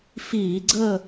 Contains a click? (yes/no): yes